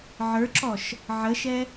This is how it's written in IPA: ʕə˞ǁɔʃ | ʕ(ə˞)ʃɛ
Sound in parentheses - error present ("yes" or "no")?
yes